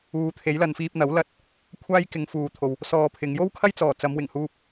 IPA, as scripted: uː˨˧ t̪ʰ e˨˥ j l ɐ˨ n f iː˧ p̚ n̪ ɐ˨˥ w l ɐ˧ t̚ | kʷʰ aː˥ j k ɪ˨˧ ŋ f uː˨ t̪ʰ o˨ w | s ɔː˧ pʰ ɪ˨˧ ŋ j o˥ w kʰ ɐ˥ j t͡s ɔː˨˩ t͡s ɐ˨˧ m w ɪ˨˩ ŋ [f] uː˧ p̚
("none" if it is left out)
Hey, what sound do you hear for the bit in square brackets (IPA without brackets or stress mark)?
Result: h